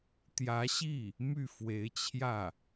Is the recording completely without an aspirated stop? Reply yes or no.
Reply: no